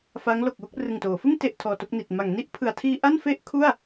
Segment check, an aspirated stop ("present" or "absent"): present